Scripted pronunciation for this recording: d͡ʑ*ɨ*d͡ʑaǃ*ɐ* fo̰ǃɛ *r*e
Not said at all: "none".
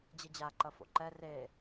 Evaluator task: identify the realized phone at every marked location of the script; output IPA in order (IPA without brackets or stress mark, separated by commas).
ɨ, ɐ, r